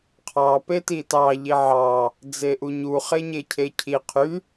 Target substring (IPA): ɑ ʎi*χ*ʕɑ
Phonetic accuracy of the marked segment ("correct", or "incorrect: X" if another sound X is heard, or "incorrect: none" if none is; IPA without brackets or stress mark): incorrect: none